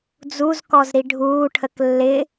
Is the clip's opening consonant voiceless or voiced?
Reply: voiced